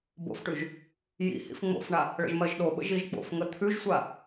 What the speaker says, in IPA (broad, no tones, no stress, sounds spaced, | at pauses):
b o̰ f ʈ ʉ ʒ | j ḭ h ḭ f ŋ͡m o̰ f ɳ a | ɭ ə̰ ʒ m ɜ ʒ ɗ o ɓ ə̰ ʒ i ʒ k͡p o̰ f ŋ ə t̪ʰ ʉ ʒ sʷ a